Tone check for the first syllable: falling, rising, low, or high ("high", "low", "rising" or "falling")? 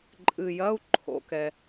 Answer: low